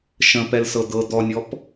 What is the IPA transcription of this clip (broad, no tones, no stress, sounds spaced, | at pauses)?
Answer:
ʃ ə̃ p ɛ l s ɤ d̪ ɤ d̪ ɔ nʲ ɔ p